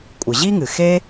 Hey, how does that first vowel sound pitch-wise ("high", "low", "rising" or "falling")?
low